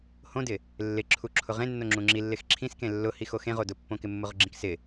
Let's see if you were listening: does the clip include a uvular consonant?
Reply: yes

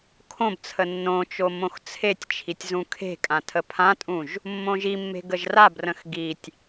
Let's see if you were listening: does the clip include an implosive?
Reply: no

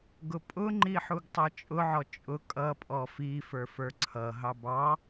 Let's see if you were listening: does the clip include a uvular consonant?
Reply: no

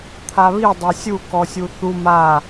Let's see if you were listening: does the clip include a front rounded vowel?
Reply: no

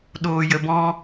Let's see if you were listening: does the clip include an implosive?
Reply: yes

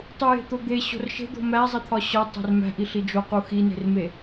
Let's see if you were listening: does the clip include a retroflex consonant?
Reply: no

